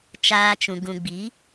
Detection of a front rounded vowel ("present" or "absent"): absent